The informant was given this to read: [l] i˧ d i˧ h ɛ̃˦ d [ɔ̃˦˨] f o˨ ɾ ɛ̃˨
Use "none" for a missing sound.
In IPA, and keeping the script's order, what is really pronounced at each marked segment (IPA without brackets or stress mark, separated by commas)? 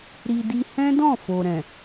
ɾ, ɔ̃˦˨